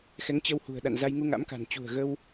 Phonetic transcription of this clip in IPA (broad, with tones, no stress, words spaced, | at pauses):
xɛ˨˦ŋt͡ɕə˧whṳ˨˩ə̯ ɗa̰˧˨n za˧jŋu˧ŋa̰˧˥m ka̤˨˩nt͡ɕṳ˨˩ə̯ ɣə˧w